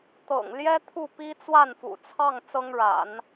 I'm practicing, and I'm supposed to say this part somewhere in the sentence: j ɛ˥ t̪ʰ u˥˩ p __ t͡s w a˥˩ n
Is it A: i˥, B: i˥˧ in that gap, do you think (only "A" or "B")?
A